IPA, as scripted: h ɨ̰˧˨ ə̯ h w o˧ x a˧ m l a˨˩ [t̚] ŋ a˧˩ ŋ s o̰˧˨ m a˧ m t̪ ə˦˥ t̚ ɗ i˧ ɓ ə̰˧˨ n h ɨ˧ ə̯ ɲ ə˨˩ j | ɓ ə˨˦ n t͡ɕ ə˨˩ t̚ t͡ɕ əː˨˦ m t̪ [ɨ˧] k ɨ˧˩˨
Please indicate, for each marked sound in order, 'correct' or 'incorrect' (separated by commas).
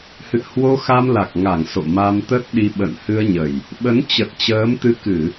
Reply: incorrect, correct